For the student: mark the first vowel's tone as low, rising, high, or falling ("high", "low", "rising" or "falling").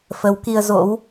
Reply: rising